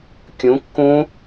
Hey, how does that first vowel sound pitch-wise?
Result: rising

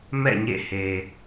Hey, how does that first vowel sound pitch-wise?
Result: falling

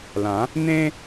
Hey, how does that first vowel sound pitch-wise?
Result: rising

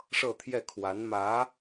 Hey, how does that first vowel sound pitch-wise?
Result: falling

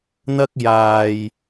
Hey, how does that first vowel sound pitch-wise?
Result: high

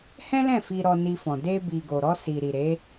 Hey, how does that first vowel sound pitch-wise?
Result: high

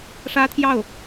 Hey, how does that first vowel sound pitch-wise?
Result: high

